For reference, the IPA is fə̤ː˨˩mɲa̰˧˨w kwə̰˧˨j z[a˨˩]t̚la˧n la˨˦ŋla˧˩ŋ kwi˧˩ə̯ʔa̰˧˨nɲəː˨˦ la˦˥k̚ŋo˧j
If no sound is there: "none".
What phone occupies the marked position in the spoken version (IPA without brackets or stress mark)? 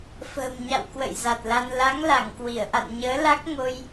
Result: a˨˩